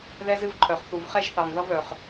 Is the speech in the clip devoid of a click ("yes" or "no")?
no